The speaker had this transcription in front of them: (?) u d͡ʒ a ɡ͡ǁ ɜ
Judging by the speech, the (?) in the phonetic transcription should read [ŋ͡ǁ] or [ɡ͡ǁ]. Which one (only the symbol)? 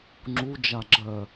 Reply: ŋ͡ǁ